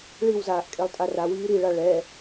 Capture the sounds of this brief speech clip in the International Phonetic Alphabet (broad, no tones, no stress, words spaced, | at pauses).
ɭiwzaːʔ kʼelˠtʼarawiː ɾiɭa ɭɛ